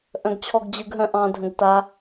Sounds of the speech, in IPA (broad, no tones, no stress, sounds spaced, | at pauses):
ʔ œ̃ ɡ t͡ɕʰ ɔ ɡ d͡ʑ ɯ ɡ ɦ œ̃ ʔ ɑ̃ dʱ ə̃ ɡ t a